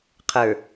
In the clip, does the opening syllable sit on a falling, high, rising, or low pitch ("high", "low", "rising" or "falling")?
low